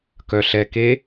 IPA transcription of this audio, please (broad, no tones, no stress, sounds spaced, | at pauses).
k œ ɬ ɛ k e